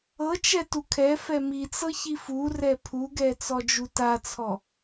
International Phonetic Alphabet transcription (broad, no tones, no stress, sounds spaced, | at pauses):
ɤ t͡ʃ ɛ t u kʰ ɛ f ɛ m i t͡s ɤ ç i f u r ɛ pʰ u ɡ ɛ t͡s ɔ d͡ʒ u t a t͡sʰ ɔ